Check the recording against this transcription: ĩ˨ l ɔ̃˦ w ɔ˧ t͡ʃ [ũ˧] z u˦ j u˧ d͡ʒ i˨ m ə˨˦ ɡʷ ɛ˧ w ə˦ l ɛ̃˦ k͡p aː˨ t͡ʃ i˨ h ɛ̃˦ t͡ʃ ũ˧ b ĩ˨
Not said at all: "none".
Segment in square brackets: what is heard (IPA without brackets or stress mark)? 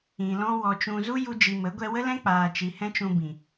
ũ˧